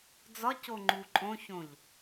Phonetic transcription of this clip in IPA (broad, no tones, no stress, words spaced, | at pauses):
d͡zɒco ŋ͡ǃuǃʼõçõʎ